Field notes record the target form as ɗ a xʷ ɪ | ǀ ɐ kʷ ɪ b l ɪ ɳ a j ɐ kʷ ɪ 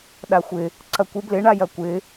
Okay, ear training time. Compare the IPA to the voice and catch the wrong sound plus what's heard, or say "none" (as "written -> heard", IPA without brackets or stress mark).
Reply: none